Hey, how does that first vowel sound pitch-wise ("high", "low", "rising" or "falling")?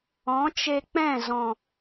rising